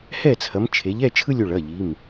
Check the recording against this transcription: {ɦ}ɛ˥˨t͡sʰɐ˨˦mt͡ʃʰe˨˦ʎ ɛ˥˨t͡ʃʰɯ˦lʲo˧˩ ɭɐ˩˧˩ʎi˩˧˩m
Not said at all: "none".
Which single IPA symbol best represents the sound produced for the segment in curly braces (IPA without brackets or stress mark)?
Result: h